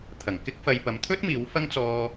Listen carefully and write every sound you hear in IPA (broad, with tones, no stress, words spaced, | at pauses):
t̪ʰɐ˨˩ŋkɪ˥k̚fɐ˧jpɐ˨˧m t̪ʰɵ˥t̚ miː˨˥wfɐ˥ŋt͡sɔː˧